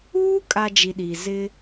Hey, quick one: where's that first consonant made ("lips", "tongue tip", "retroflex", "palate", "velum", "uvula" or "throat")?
velum